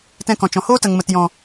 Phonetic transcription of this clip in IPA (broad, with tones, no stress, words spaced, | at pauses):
tɛ̃˧kɔ̃˨t͡ʃɔ̃˨hoː˦ tə˨ŋmə˨tjɔ̃˨